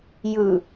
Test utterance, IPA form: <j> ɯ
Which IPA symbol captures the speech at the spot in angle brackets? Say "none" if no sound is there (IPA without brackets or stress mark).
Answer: j